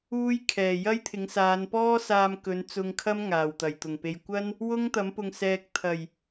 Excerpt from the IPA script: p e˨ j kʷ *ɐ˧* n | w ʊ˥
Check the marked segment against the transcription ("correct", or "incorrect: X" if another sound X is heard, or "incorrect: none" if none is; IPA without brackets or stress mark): incorrect: ɐ˥